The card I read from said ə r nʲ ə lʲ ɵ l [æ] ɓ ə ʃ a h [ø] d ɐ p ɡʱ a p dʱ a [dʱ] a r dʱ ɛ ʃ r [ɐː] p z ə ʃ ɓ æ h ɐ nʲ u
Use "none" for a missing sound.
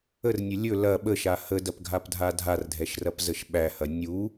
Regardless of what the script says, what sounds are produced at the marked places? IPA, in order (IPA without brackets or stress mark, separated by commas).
ɐ, ə, dʱ, ɐ